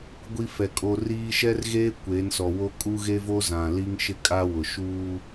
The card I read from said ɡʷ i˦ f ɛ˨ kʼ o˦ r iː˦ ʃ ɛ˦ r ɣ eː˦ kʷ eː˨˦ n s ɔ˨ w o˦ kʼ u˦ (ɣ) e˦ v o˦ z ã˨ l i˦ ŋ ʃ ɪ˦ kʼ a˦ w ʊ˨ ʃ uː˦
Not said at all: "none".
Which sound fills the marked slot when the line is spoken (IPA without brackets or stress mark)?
ɣ